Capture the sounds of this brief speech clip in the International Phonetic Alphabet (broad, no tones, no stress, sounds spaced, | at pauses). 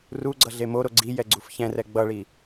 r u ɡ͡ǀ ʌ ɮ e m o ɾ o ɡ͡ǀ i j ɛ ɡ͡ǀ u f ç ɛ̃ r ɛ ɡ͡b ʌ ɭ i